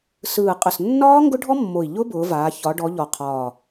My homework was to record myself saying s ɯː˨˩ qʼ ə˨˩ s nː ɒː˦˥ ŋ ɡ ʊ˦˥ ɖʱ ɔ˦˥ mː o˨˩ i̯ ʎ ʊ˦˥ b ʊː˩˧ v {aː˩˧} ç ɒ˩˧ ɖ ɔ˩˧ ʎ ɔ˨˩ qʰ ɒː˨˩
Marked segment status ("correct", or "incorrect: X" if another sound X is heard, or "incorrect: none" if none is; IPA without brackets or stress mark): correct